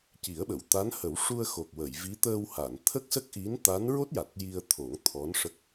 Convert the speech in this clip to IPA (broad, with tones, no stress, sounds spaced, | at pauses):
c i˨˩˦ ə̯ ɓ ə˨˩˨ w t̪ a˧˥ n h ə˨˩˦ w ʂ u˧ ə̯ x o˨˩ k̚ w ə˨˩˨ j v i˧˥ t̪ əː˧ w h a˨˩˨ n t̪ʰ ə˦˥ k̚ s ə˦˥ k̚ ʔ i˧˥ n t̪ a˧˥ n ɹ o˦˥ t̚ j a˨˩ t̚ j i˧ ə̯ t̪ʰ o˨˩˦ ŋ t̪ʰ ɔ˧˥ n ʂ ə˦˥ k̚